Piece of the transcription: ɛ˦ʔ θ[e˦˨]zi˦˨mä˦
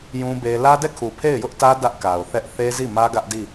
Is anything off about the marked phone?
yes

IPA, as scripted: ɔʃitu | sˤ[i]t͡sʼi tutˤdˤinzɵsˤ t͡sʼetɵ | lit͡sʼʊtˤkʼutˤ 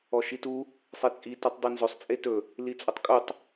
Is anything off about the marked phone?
yes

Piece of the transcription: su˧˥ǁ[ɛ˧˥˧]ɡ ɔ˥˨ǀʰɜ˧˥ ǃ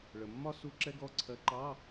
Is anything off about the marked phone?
no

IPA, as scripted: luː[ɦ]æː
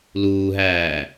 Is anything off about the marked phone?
no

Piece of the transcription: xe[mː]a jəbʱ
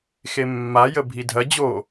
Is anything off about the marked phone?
no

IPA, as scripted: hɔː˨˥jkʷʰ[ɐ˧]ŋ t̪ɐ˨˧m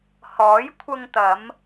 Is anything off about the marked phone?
no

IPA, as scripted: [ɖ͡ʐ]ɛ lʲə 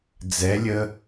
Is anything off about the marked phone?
yes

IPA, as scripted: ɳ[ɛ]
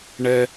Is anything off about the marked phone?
no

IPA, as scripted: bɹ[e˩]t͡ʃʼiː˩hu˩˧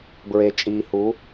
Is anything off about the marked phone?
no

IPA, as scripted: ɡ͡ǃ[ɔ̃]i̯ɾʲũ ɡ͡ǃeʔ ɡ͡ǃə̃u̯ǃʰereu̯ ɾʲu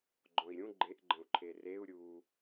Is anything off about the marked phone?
no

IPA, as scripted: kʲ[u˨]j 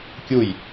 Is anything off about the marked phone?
yes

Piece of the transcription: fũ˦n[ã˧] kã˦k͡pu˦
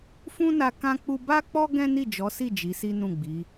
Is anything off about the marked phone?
yes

